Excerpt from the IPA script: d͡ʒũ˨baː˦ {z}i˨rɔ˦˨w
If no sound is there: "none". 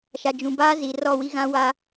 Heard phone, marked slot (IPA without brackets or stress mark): z